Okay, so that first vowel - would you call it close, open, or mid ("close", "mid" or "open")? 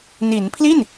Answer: close